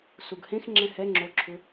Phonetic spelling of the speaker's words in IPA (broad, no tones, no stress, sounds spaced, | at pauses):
s u ɡ h ẽ x ŋ͡ǁ ɛ̃ h ɛ ŋ͡ǁ o ǁʰ ʏ